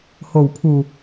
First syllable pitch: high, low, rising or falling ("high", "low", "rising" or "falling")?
low